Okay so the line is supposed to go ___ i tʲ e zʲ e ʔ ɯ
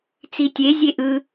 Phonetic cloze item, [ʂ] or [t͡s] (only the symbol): t͡s